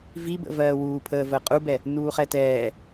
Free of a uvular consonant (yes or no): no